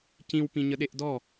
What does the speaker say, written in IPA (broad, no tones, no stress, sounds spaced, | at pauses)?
c ĩ w p ĩ ɲ ə ɗ e ʔ d ɔ